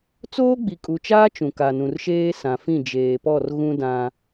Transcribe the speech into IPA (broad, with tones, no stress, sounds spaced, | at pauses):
t͡s oː˦ ɡ͡b i˨ kʼ u˨ t͡ʃ aː˦ t͡ʃ ũ˨ k a˨ n ũ˨ r ʃ eː˦ s ã˨ f ĩ˦˨ d͡ʒ eː˨ p ɔ˦˨ r ɣ ũ˦ d ã˨